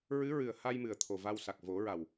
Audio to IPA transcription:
ɹ ɨ˧˥ ɹ ɨ˨˩ ə̯ h a˧ j m ɨ˨˩ ə̯ t̪ʰ o˨˩ v a˧ w s a˨˩ k̚ v o˨˩˦ ɹ a˨˩ w

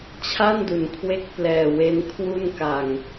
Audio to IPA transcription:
t͡ɕʰ a˥˩ n d u˩˦ n kʰ w e˦˥ k̚ p l ɛː˨˩ w e˧ n kʰ w u˥˩ n k a˨˩ ŋ

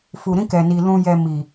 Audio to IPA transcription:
f u˨ ɾ ĩ˧ k ɛ˨ n i˨ l ũ˨ j ɛ˨ m i˨

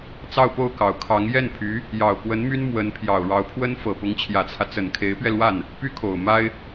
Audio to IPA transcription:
t͡s ɑ˥˧ ʊ̯ p o˥˩ ʊ̯ k ɑ˨˩ ʊ̯ kʰ ɑ˧˥ ŋ j ɛ˥˩ n pʰ y˧˥ | j ɑ˨˩ ʊ̯ k w ə˧˥ n m y˥ n m w ə˧˥ n pʰ j ɑ˨˩ ʊ̯ ɻ ɑ˧˥ ʊ̯ pʰ w ə˥ n f ɤ˨˩ p ʊ˧˥ ŋ t͡ɕʰ j ä˨˩ t͡sʰ ä˦ t͡s ə˨˩ n kʰ e˧˥ ɪ̯ p ɥ ɛ˧ l w a˥˩ n | p y˥ kʰ o˨˩ ʊ̯ m a˥ ɪ̯

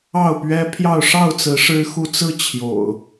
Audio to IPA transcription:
ɑ˥˨ ʊ̯ p ɥ ɛ˦ pʰ j ɑ˥˨ ʊ̯ ʂ ɑ˥˨ ʊ̯ t͡s ɹ̩˨˦ ʂ ɻ̩˦ x u˥˨ t͡s ɹ̩˥˨ t͡ɕʰ j o̰˨˩ ʊ̯

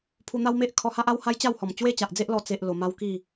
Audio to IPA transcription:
pʰ u˧ n̪ a˦ w m e˦ ʔ kʰ ɔ˧ h a˦ ʔ a˦ w h a˦ j t͡ɕ a˥˧ w h ɔ˨˩ m t͡ɕ w e˦ t͡ɕ a˨ ʔ d͡z e˦ ʔ l ɔ˧ t͡s e˦ ʔ l o˧ m a˦ w k i˥˧

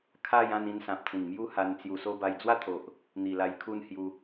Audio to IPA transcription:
kʰ a˥˧ j ã˥˧ n ĩ˧ n s ã˨ p̚ t͡s ĩ˨˩ ŋ m j u˥˧ h a˧ n t͡s j u˧ s o˦ b a˧ j d͡z w a˥˧ t̪ʰ o˨ ʔ | n̪ i˨˩ l a˧ j kʰ u˥˧ n h j u˧

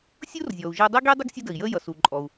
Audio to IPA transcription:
sʲ ʊː˥ r zʲ ɔː˩ u̯ ʒ ɪː˧ dˤ i˥ ɡ iː˥ dˤ ɪ˥ ɡ sʲ ʌ˥ d ə˩ i̯ j ə˥ j ʌ˩ s u˩ ǃʼ ɔ˩ u̯

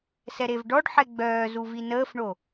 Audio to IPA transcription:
s ɛ ɾ e v ɖ ɔ ɖ ħ ɛ ɡ͡b œː z u v i n əː f ɳ o

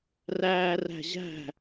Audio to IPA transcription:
r æː r æ̤ ʑ æ̤

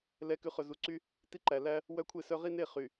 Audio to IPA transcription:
l ɛ˨˦ k ʉ˨ χ ɵ˨ z u˨ ǀ y˦ | t i˦ ǃ æ˨ l æ˦ | w œ˦ kʷʰ e˦˨ s œ˦ ʁ i˦ n e˦˨ χ y˨

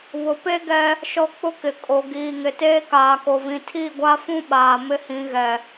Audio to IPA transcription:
β ʊ˨ p e˦ ɡ ɛ˦ | ʃ ɔ˦ k͡p ʊ˦ k ɪ˨ kʼ o˨ ɡ iː˨ ŋ ɪ˨ t eː˦ k aː˨ k o˨ v ĩ˨ tʰ i˦˨ ɡʷ a˦ f ũ˦ ɓ aː˨ m ɪ˦ h ĩ˨˦ ɣ ɛ˨

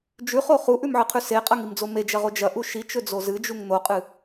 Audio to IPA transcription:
d͡ʒ ʉ χ o χ u ʔ ʉ m ʕ ɨ qʰ ʉ s e qʼ ɐ ŋ i m d͡z o m e d͡ʒ ɐ ʁ o d͡ʒ ɐ ʔ u ʃ i t͡ʃ ɵ d͡z o z ɨ d͡ʒ u ŋ n̪ o qʼ ɨ

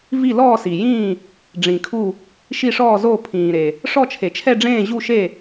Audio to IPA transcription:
v i˥˩ l ɔː˥˩ s i˩ j ĩː˥˩ | ɖ͡ʐ ĩ˩ kʰ u˥˩ | ʃ i˥˩ ʂ ɔː˥˩ z oː˥˩ pʰ ĩː˩ ɾ e˩ | ʂ ɔ˥˩ t͡ʃʰ e˩ t͡ʃʰ ɛ˥˩ ɖ͡ʐ ẽː˥˩ ʑ u˥˩ ʃ e˥˩

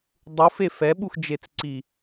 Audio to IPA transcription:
dˤ u f e f ɛ ɓ u x d͡ʒ e t͡s ǀ i

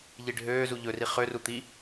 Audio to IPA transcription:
ʎ i ɖʱ øː z u ʎ ɵ r i χ ø r u t̪ i

